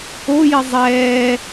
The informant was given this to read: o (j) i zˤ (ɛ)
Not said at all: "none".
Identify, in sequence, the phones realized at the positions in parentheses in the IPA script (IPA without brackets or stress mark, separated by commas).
j, ɛː